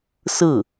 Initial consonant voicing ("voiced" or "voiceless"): voiceless